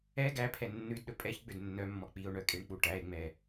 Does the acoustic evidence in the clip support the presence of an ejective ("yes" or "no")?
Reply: yes